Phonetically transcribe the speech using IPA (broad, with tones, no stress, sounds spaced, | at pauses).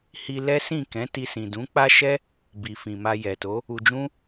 h i˧ l ɛ˦ s ĩ˦˨ k ɛ̃˨˦ t i˧ s ĩ˨ d ũ˨˦ k͡p a˦ ʃ ɛ˦ | b i˨ f ĩ˨ m a˧ j ɛ˨ t o˨˦ | u˧ d͡ʒ ũ˦